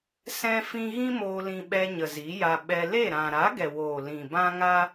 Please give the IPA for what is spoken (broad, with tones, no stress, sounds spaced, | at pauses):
s ɛ̃˦ f ĩ˦ ɣ ĩ˦ m oː˧ l ĩ˧ ɓ ɛ˧ ɲ ə˨ z i˨˦ j a˧ ɓ ɛ˧ l e˦˨ ɾ ã˨ ɾ a˨˦ ɡ ɛ˨ w oː˨ l ĩ˨ b ã˦ ŋ a˦